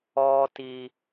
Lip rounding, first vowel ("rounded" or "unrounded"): rounded